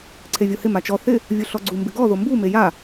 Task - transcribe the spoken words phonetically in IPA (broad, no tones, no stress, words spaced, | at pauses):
ǀʰevʲohɪ mat͡ʃɔ θɪ | vʲuɬɔɡ͡ǀu mbɪɡɔ ðombu meja